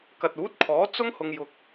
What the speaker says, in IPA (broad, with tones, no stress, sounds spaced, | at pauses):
k ɐ˨ t̚ uː˨˥ t̚ kʰ ɔː˨˥ t͡s ʊ˥ ŋ h ʊ˨ ŋ j ʊ˨ k̚